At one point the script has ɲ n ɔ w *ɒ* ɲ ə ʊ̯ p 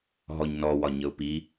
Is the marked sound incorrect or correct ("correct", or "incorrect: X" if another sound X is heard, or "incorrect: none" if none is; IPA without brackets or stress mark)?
correct